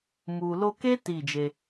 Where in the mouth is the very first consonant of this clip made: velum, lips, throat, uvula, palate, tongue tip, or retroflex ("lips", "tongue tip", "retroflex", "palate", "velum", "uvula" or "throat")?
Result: lips